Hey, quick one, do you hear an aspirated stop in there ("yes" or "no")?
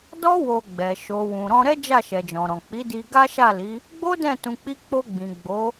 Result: no